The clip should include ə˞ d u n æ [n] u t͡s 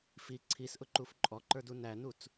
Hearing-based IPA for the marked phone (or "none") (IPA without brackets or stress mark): n